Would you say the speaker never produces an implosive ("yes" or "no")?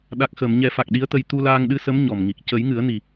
no